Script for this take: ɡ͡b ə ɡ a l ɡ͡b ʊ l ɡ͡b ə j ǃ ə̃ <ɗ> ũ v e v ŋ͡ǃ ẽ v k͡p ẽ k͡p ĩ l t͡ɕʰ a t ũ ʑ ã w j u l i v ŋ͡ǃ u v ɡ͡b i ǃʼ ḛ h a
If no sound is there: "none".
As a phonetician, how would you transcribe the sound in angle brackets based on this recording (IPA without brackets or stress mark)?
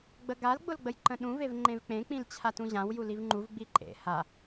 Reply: ɗ